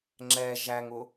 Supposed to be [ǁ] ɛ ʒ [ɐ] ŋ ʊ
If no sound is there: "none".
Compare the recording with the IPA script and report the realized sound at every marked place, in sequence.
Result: ŋ͡ǁ, æ

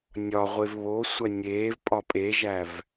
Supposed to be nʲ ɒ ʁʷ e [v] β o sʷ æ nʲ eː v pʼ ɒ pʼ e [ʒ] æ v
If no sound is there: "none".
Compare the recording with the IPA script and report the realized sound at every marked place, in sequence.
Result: v, ʒ

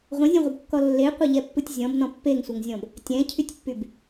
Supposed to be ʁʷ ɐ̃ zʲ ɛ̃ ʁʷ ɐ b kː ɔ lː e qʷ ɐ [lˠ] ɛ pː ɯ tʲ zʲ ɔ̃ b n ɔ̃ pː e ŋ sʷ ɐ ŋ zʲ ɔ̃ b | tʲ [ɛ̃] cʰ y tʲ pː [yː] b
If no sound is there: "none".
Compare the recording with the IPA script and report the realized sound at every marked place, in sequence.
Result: ʎ, ɛ̃, y

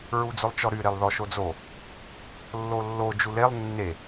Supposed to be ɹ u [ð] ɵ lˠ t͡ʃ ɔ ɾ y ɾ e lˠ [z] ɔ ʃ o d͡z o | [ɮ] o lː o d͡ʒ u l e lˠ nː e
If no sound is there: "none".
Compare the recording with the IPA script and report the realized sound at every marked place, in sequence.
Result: d͡z, ð, lː

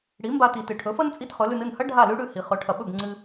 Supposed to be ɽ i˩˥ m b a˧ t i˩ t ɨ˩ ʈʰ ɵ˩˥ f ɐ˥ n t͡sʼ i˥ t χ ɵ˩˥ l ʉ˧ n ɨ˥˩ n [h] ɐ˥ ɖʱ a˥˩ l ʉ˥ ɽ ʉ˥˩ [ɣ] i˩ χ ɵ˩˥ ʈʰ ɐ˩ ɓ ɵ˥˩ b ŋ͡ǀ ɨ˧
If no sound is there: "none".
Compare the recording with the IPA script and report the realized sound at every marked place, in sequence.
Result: h, h

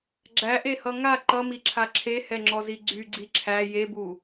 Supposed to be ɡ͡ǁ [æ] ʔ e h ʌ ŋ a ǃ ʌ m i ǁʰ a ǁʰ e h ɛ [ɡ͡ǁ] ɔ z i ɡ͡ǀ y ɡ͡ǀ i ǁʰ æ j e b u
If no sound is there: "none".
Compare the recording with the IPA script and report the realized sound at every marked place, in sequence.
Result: æ, ŋ͡ǁ

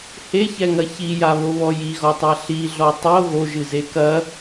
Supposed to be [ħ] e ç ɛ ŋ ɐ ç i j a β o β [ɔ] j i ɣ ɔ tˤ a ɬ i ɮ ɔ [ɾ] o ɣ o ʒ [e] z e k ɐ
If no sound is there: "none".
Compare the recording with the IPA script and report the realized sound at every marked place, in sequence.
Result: h, ɔ, tˤ, ɨ

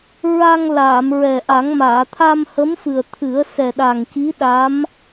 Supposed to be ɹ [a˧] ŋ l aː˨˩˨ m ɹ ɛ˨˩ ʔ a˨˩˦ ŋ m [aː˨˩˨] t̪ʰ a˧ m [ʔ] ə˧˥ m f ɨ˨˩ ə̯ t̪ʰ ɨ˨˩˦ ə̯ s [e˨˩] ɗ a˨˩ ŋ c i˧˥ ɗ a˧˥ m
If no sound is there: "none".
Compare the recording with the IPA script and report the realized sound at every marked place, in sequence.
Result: a˧, aː˨˩˨, h, ɛ˨˩

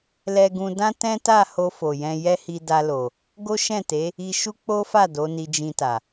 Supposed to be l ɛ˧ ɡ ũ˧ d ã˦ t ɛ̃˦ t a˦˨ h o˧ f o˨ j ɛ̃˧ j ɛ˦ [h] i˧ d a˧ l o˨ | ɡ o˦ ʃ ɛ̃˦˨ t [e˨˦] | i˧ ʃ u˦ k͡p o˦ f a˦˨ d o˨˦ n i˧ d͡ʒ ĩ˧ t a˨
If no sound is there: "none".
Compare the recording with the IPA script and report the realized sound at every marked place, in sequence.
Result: h, e˨˦

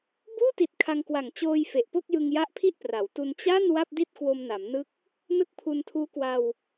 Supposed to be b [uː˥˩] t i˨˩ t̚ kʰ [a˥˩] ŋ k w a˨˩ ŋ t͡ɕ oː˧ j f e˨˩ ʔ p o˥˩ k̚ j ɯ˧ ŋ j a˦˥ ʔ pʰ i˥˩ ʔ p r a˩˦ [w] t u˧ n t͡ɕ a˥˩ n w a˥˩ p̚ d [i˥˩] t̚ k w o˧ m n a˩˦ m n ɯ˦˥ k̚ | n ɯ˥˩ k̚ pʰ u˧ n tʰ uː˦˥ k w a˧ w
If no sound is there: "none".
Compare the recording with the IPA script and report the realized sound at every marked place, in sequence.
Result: uː˥˩, a˧, w, i˥˩

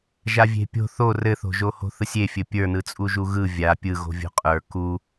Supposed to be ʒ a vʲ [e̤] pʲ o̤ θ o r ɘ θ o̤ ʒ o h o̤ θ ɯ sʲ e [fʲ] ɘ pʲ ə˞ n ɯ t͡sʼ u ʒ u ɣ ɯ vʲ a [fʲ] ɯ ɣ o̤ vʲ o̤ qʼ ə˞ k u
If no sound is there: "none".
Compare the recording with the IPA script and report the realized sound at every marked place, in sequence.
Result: e̤, fʲ, pʲ

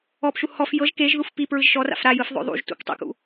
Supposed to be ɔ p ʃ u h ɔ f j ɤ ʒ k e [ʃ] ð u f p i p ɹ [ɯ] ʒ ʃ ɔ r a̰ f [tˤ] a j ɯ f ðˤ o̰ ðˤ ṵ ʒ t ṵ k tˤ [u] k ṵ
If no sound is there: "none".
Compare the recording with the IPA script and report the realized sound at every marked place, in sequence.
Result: ʒ, ɯ, ɾ, ṵ

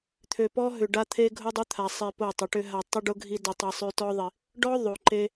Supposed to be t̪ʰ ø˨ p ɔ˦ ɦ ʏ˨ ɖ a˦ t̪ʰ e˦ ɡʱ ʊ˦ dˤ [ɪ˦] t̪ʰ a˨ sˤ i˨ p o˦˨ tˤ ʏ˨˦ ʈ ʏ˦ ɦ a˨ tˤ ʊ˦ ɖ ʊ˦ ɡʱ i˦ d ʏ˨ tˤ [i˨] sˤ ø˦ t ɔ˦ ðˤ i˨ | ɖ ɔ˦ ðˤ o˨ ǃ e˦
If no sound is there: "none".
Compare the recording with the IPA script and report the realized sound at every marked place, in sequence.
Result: ʏ˦, i˨

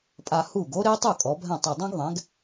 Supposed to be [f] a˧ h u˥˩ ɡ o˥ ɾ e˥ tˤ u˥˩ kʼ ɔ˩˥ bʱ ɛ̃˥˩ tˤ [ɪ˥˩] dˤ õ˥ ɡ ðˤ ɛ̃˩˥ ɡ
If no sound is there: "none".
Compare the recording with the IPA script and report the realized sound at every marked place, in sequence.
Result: pʼ, ɪ˥˩

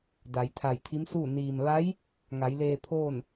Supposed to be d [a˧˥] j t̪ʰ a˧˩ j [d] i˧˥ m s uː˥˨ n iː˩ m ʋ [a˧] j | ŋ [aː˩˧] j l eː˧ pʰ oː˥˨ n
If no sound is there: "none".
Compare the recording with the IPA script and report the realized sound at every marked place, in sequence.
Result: a˩˧, t̪ʰ, a˧˥, a˩˧

